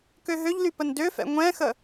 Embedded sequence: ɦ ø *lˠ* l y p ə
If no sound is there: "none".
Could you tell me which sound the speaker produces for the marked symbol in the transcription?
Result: ʎ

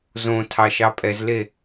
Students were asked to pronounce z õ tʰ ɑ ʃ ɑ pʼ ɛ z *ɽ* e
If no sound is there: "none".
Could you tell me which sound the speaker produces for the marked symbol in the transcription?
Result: l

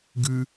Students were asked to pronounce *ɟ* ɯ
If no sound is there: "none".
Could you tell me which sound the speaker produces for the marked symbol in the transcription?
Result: ɡ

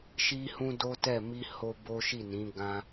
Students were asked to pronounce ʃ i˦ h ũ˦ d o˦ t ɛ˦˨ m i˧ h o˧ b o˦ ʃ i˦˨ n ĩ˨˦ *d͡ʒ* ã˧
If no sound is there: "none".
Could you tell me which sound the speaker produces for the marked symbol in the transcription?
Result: ɡ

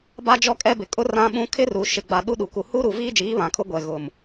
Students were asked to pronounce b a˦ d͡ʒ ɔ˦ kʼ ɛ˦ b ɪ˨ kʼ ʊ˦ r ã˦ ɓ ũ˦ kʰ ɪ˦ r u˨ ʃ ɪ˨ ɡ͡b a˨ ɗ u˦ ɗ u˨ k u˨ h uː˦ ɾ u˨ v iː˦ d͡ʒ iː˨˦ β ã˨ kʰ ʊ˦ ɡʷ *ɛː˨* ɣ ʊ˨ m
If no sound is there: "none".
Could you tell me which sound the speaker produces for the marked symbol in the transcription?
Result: ɛ˨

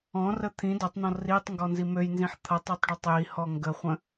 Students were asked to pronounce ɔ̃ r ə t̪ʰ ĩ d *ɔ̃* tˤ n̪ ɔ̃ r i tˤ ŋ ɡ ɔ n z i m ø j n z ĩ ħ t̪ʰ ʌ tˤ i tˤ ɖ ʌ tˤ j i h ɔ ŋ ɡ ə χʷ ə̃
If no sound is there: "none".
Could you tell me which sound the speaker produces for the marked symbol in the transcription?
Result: ɔ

